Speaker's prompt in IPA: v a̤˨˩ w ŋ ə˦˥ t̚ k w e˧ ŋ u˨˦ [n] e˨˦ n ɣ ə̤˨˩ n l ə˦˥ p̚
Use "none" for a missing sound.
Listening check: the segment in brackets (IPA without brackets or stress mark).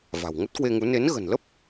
n